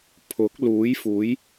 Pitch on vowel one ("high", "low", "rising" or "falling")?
rising